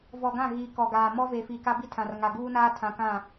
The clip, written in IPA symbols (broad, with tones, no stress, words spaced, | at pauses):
vɔ˨ɡã˦˨ ɣi˨ kɔ˨ɡaː˨ mɔ˦ve˨fi˨ ka˦bi˦tʰã˨r ŋa˨ɡuː˦naː˦ tʰã˨kã˦˨